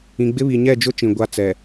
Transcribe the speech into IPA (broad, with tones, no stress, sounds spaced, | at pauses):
ĩ˨ ɡ͡b ɪ˦ β i˨ ɲ ɛ˦˨ d͡ʒ ʊ˦ t͡ʃ ĩ˨ ɡʷ a˦ t͡s ɛ˨